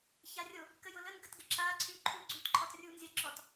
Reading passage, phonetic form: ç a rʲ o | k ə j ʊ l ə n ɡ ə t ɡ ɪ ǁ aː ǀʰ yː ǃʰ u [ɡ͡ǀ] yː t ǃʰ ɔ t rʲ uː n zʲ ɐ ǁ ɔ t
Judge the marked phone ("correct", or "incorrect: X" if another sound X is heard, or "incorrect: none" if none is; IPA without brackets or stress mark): correct